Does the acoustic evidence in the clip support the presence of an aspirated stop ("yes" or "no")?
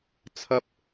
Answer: yes